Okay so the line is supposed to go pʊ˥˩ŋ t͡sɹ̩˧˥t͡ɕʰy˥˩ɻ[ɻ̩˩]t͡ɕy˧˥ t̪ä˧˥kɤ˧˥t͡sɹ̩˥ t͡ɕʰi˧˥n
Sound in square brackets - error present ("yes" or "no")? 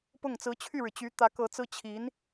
no